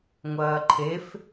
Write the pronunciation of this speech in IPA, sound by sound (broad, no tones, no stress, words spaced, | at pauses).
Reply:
ŋʷɐːǃʰef